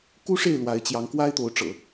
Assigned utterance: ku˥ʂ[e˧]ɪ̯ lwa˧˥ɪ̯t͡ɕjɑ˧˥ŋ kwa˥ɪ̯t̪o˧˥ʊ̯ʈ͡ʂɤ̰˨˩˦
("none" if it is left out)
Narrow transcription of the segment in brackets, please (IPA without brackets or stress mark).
e˥˩